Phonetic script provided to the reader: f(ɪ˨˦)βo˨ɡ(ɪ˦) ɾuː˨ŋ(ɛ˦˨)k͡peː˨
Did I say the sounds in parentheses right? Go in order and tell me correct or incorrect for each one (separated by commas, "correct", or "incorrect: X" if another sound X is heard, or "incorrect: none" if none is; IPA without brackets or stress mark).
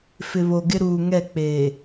incorrect: ɪ˨, correct, correct